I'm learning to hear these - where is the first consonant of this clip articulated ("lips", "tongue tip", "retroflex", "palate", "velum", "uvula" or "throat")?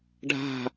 retroflex